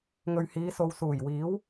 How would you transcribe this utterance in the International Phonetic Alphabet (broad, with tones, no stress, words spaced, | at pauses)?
ŋɵ˨ɥhiː˨˧so˨w suː˨˩jwiː˨˥w